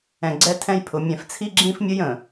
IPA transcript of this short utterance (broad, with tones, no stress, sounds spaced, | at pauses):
ɛ̃˨ ɡ͡ǀ ɛ˦ tʰ ɛ̃˦ j pʰ ʊ˨ mʲ ɛ̃˨ f t͡sʰ i˦ ɡ͡ǁ ĩ˦ f mʲ ə˦ j ə̃˨